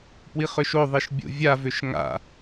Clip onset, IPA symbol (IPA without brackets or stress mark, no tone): p